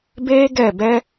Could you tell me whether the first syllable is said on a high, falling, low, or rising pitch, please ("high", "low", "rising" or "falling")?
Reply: high